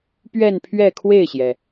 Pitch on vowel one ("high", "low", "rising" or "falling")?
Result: falling